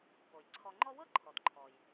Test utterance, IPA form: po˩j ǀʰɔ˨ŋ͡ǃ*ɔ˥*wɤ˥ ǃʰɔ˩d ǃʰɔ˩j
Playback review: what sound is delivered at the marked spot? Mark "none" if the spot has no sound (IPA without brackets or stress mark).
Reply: ɔ˦